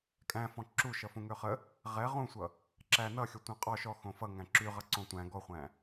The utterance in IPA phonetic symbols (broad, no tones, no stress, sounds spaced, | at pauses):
kʼ æ̃ f ɔ̃ ǁ u ʃ ʌ f ũ ŋ ø χ ə | ʁ ɛ ʁ ũ sʷ ʌ | ǁ æ n ʌ xʲ ʌ tʷ ɛ̃ qʼ ɔ ʃ ɔ x õ f ʌ ŋ æ̃ ǁ y ʁ ʌ ǀ õ tʷ æ̃ ɡ ɔ χʷ æ̃